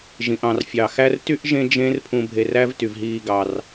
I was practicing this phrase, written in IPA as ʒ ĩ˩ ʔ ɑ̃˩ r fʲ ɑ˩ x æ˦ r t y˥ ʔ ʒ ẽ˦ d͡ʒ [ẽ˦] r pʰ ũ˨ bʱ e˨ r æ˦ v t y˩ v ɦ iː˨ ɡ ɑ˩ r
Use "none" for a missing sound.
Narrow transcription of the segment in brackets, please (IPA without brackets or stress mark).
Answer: ẽ˦